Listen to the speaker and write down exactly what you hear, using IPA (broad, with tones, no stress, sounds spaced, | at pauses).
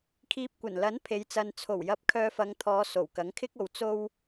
kʰ iː˧ p̚ kʷ ɐ˨˩ n l ɐ˨˥ n pʰ e˨˧ j t͡s ɐ˧ n t͡sʰ o˨˩ w j ɐ˧ p̚ kʰ œː˧ f ɐ˨˧ ŋ t̪ʰ ɔː˨˧ s o˨˩ w k ɐ˨˥ ŋ kʰ ɪ˥ k̚ o˨˧ w t͡s o˧ w